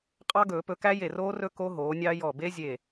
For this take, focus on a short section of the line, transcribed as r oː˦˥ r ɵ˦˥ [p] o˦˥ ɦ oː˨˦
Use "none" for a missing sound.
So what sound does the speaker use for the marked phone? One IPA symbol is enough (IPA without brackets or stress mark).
k